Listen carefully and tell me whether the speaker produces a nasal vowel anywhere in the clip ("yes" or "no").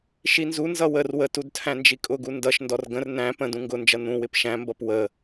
yes